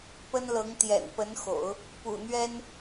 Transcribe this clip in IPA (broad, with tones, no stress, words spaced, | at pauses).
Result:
pə˥nlɤ˧˥ŋ t̪jɛ̰˨˩npə˧˥nxo̰˨˩˦ʊ̯ | pṵ˨˩n̪ɥɛ˥n